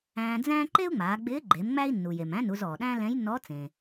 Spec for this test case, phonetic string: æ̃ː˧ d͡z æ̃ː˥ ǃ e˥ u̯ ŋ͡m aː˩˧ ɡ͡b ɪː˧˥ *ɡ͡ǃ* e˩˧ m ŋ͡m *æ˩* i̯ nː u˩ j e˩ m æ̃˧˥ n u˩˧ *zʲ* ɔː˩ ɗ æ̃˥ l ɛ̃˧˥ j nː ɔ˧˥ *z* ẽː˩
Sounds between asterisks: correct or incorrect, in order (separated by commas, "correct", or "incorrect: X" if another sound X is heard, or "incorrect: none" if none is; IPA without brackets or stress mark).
correct, incorrect: æ˥, incorrect: z, incorrect: t͡s